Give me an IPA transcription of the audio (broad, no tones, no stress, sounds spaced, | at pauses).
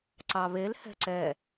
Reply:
ǀ ɑ β e l h ɛ̤ ǀ ɛ